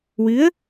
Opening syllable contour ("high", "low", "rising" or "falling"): rising